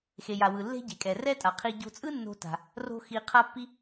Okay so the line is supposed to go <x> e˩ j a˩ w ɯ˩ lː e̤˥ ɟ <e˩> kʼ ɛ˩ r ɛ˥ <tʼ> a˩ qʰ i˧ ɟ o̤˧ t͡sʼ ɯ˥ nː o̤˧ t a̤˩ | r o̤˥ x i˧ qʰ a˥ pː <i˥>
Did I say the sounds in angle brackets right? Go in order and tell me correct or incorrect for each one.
correct, correct, correct, correct

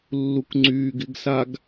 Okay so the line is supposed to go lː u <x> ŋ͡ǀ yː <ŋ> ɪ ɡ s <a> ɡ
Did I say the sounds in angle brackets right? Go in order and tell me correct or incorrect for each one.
incorrect: k, incorrect: ɡ, correct

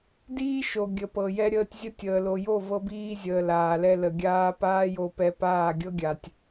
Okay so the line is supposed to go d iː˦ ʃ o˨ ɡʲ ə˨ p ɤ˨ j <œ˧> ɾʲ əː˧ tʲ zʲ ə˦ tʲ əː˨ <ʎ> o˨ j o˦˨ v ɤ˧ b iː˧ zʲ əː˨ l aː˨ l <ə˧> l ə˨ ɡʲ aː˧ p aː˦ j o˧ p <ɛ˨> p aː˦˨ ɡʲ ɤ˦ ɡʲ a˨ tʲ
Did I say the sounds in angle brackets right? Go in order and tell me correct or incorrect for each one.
incorrect: ɛ˧, incorrect: l, incorrect: ɛ˧, incorrect: ɛ˧

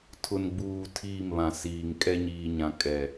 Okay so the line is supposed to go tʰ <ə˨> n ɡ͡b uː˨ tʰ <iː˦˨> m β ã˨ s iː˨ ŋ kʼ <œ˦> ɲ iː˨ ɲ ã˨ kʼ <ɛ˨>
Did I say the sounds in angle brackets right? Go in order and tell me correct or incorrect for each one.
incorrect: ʊ˨, correct, incorrect: ɛ˦, correct

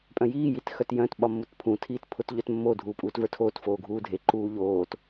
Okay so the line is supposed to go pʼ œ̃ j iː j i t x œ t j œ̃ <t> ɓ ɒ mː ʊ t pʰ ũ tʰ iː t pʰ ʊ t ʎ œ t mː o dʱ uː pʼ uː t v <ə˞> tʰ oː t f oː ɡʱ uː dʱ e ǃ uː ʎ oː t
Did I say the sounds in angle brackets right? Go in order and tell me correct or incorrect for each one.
correct, correct

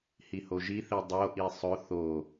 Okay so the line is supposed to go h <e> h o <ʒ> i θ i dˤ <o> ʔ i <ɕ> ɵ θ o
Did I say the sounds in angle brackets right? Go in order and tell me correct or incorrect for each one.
incorrect: i, correct, correct, incorrect: sˤ

